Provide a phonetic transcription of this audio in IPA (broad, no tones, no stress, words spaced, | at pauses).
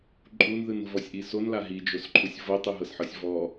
ǃʼunðɯn vɔsʲʔisonla ɦid͡ʒosǃʰusʲ vɤ tˤɯɦɤsħɤsʲvɔ